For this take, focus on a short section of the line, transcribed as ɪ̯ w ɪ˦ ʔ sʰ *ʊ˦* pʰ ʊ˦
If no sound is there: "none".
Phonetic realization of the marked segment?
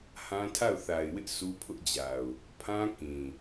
u˦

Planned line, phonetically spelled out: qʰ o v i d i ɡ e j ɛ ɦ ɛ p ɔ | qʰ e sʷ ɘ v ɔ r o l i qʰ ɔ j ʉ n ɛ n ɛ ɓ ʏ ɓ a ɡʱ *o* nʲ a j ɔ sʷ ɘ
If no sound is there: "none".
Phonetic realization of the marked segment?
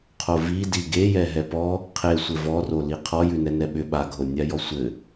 o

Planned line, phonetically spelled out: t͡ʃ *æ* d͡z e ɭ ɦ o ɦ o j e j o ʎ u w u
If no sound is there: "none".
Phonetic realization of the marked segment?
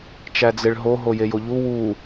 æ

